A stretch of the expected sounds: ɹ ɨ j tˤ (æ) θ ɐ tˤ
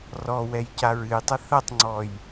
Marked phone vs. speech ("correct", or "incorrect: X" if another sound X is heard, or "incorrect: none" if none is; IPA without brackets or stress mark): incorrect: ɐ